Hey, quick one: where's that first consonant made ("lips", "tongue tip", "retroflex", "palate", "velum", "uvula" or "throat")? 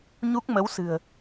palate